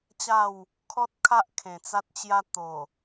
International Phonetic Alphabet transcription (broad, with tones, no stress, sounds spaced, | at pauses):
t͡ɕ a˥˧ w | kʰ ɔ˦ t̚ kʰ a˦ ʔ kʰ ẽ˨˩ t͡s a˦ t̚ t͡ɕ j a˦ t̪ o˨˩